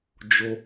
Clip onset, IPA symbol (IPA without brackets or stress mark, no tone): d͡ʒ